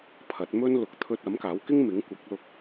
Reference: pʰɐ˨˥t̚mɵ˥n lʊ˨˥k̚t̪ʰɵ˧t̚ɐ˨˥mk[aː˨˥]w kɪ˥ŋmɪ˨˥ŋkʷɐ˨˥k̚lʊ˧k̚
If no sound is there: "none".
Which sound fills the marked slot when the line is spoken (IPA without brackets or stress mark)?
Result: aː˨˥